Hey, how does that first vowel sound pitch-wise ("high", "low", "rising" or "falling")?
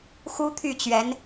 high